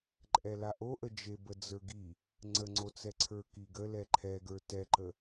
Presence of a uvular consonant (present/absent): absent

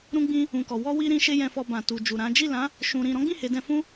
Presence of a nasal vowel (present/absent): present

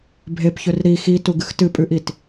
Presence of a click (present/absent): absent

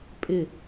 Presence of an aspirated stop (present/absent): absent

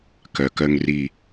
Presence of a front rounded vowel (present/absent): present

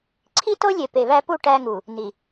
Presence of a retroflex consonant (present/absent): present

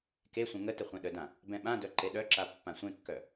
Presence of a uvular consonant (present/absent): present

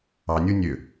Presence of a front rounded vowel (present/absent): present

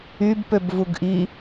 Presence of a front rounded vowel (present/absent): present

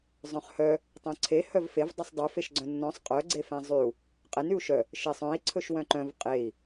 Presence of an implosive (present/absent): absent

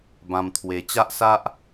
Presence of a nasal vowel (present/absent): present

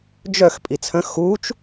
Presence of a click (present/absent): absent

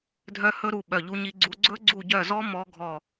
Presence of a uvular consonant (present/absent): absent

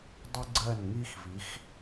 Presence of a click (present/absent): present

